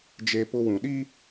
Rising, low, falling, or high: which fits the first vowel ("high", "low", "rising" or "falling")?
high